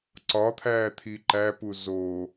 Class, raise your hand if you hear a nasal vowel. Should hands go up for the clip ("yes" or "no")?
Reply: no